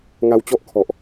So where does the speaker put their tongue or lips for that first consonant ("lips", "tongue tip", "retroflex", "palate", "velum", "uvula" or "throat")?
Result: velum